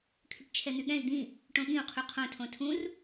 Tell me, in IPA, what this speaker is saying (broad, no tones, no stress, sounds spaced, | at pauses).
kʰ y ʈ t͡ʃʰ ɛ n̪ y ɠ ɛ̃ i̯ d̪ ĩ | ʈ õ ɠ ĩ u̯ qʰ u qʰ õ tʰ õ tʰ ũ r